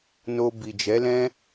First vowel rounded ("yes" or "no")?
yes